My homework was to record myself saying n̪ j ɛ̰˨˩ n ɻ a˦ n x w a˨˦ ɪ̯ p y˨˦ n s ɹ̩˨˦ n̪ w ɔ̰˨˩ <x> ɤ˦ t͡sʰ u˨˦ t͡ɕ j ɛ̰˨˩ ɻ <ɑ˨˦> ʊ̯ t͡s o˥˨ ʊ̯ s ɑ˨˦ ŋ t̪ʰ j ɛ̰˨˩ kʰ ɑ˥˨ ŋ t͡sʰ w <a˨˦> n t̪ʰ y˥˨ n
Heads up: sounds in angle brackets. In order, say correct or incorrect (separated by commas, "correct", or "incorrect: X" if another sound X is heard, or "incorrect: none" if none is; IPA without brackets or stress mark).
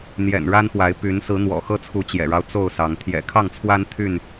correct, incorrect: ɑ˦, incorrect: a˦